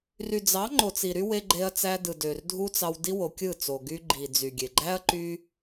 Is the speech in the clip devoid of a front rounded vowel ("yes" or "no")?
no